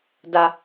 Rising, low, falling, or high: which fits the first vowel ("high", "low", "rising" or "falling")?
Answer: high